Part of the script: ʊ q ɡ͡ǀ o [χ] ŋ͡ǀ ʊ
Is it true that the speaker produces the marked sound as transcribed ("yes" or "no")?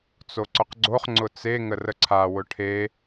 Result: yes